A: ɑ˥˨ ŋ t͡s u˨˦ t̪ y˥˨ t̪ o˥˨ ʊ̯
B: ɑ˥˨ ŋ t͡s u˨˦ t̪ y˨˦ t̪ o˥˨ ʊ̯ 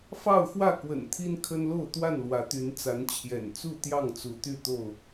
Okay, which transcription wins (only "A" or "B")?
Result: A